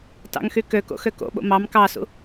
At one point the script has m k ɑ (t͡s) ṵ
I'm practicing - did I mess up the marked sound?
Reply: yes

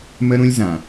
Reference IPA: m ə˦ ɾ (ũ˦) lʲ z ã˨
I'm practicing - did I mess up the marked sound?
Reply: no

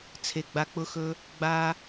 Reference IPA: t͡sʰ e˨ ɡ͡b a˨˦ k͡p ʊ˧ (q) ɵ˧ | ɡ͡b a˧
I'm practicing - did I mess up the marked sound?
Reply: yes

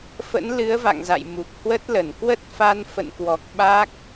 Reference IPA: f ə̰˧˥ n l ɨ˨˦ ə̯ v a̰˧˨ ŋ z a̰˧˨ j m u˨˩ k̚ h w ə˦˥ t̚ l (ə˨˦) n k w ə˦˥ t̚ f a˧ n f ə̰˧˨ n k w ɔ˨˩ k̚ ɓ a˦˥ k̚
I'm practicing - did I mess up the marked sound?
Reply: yes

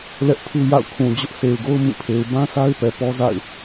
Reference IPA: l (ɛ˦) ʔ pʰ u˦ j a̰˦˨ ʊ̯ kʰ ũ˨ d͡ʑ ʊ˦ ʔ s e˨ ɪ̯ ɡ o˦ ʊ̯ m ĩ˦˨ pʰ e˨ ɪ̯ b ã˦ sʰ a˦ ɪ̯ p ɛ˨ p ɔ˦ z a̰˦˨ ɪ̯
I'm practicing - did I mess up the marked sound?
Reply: no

